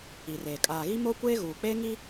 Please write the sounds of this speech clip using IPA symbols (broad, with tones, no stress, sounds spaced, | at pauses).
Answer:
i˨ r eː˨ kʼ aː˨ ɣ i˦ m o˦ kʷ eː˦ ɣ uː˨ k͡p eː˦ ŋ i˦